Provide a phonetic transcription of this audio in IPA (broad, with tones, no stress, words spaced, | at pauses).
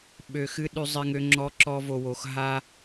ɓø˧xɨ˦ ɗʉ˦zˤɪ˦ŋø˦ ŋ͡ǁɔ˦ǁɔ˦vo˧wo˧x ɦa˦